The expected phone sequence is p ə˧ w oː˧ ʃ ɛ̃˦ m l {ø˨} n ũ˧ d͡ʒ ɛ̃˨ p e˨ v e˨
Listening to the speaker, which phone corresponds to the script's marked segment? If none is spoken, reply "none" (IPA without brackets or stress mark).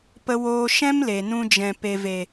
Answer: e˨